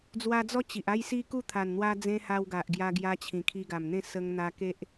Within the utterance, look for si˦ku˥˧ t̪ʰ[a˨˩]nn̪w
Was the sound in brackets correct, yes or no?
yes